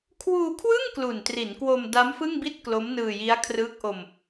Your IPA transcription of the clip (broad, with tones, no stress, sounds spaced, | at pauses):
kʰ w uː˧ kʰ w ɯ˥˩ ŋ k l u˨˩ n t r i˩˦ n k w o˧ m d a˦˥ m f ɯ˥˩ ŋ b i˥˩ t̚ k l o˦˥ m n ɯː˧ j i˦˥ a̯ kʰ r ɯː˦˥ k̚ ʔ o˧ m